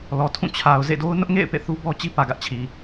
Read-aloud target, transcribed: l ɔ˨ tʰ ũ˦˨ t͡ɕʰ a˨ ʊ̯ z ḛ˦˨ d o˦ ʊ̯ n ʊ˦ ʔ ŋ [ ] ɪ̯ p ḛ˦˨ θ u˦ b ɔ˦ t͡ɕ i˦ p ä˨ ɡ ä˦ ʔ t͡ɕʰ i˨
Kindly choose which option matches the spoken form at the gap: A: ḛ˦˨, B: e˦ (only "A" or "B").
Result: A